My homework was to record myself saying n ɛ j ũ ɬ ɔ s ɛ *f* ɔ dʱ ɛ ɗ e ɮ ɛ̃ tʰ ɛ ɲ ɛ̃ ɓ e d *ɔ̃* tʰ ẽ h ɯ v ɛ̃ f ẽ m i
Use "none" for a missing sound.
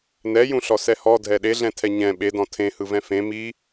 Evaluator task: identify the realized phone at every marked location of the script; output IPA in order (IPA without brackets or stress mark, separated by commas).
h, ɔ̃